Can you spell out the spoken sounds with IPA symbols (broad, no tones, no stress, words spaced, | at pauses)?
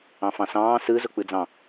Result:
ɑ̃fɑ̃sɑ̃ː sɯ zʊk͡pɯd͡zɑ̃